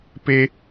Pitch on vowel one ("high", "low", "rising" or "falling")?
high